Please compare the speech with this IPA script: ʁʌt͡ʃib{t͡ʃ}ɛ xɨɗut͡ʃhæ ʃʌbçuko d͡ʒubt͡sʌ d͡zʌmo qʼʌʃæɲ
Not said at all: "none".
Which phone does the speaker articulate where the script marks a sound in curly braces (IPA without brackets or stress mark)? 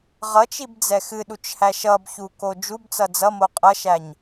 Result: d͡z